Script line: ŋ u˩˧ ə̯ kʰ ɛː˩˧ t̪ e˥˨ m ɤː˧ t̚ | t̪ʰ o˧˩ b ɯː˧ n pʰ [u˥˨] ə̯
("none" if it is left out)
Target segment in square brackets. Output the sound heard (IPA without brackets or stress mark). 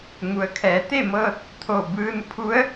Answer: u˧˥